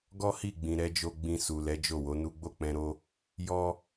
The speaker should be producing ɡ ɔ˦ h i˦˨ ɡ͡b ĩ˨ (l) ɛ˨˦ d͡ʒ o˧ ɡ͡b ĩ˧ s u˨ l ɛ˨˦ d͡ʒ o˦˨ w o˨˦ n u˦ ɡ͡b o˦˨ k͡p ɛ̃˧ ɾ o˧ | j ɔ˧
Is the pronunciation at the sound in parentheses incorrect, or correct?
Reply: incorrect: ɾ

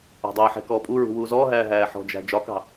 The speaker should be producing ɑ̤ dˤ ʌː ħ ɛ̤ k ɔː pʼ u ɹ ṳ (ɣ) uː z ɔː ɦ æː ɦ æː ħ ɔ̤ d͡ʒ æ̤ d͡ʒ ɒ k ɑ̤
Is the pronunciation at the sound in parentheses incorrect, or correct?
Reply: incorrect: w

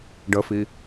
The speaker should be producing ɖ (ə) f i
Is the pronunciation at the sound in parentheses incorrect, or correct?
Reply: correct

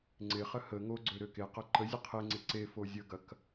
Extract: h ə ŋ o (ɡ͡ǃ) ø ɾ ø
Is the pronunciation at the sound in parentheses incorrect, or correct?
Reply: incorrect: ɡ͡ǀ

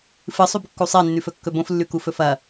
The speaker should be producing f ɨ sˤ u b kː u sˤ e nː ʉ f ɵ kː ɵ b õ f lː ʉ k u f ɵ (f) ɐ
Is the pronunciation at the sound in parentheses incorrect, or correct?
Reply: correct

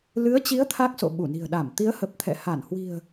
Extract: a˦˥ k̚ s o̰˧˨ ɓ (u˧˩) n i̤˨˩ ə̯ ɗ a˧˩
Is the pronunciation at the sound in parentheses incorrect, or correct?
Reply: correct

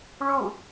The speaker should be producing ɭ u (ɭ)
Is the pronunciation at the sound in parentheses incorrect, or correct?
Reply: incorrect: none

